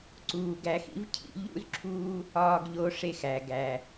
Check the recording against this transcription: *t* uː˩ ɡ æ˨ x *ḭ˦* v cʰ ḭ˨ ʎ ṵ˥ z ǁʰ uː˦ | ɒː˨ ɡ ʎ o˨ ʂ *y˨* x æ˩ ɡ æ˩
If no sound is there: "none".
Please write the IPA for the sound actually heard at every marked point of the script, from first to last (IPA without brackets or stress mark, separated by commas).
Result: ǀ, ḭ˦, e˨